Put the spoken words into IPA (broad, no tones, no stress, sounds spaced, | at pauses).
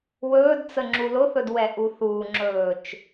w ɵː d t͡s ə ŋ͡ǁ u l ʊ θ ɵ d w ɛ ʔ u θ uː ŋ͡ǁ ɵː t͡ʃ